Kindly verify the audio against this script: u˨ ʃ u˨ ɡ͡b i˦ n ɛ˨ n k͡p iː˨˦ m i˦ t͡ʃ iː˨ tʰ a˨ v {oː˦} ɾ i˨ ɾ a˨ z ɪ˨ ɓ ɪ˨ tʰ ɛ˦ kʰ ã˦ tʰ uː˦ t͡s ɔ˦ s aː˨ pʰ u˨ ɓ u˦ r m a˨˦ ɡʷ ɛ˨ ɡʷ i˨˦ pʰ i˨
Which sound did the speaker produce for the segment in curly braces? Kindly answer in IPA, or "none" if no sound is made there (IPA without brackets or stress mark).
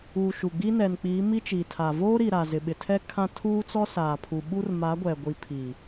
oː˦